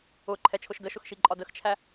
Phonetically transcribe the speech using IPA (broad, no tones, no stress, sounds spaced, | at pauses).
ʊ ǃʰ ɛ t͡ʃʰ ʊ ʃ d ə ʃ ʊ x ʃ i ǃʼ ɒ d ə x t͡ʃʰ æ